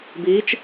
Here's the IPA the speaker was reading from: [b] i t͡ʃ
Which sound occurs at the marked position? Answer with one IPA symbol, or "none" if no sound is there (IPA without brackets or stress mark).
b